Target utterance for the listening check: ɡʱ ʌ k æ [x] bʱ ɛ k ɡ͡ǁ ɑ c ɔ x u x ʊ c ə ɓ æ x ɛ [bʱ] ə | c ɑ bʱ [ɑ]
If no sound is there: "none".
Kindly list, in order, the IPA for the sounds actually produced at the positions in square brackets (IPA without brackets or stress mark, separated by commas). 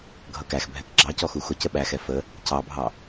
x, f, ɑ